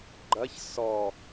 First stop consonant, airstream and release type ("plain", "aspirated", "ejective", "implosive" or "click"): click